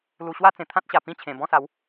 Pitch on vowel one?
low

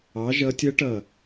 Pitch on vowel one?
rising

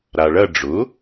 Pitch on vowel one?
low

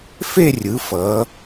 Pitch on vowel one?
falling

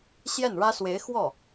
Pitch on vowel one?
falling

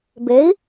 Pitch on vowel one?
rising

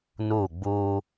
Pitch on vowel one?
falling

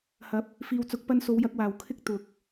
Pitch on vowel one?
rising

